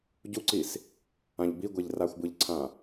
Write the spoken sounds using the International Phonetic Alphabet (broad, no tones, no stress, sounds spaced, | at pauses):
ɟ u ǀ i s | ã ʎ b i ɡʷ e ʎ r a xʷ b ɯ ʎ ǀʰ ã